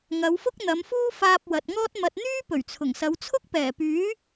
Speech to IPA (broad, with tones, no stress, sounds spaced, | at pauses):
ŋ ɐ˨˧ w f ʊ˥ k̚ n̪ ɐ˨˧ m f uː˥ f aː˧ p̚ w ɐ˨ t̚ ŋ ɔː˥ t̚ m ɐ˨ t̚ n̪ yː˥ p ɵ˨˩ ɥ t͡sʰ ʊ˨˩ ŋ s ɐ˨˧ w t͡sʰ ʊ˥ k̚ p ɛː˨˩ p yː˨˥